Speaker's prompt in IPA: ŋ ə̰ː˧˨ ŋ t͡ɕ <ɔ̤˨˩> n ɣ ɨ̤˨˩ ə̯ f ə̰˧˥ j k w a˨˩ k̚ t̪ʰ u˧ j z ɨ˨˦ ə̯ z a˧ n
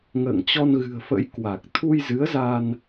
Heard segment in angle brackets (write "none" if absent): ɔ˧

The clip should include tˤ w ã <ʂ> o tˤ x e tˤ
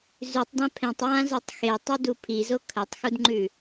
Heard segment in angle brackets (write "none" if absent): z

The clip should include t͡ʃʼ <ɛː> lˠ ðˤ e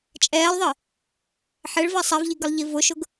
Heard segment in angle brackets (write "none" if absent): ɛː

